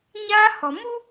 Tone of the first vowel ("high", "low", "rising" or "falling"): high